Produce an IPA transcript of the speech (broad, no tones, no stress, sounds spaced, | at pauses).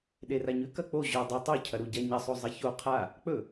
ɗ e r a ɲ ʉ k ɐ k͡p o ʑ ɵ dˤ o tˤ u cʰ ɐ ɾ u ɟ a ɲ ɐ sˤ o zˤ ɐ ç o qʰ a | k͡p ɵ